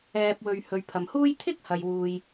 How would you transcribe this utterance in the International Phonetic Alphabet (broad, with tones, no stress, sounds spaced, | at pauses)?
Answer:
ɛː˨ p̚ w ɵ˨ ɥ h ɵ˨ ɥ pʰ ɐ˨ m h uː˥ j t̪ʰ ɪ˥ k̚ h ɐ˨ j w uː˨ j